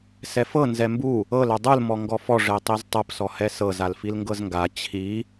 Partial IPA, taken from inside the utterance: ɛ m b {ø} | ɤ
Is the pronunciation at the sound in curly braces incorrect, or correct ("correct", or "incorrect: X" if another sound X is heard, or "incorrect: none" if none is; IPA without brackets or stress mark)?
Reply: incorrect: u